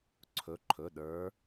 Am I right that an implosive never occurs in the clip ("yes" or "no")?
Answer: no